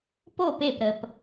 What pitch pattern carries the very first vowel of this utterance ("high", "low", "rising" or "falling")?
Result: falling